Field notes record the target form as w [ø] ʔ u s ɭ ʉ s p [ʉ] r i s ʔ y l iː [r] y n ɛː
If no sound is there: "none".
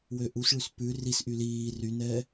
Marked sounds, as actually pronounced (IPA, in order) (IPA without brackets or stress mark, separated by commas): ø, ʉ, r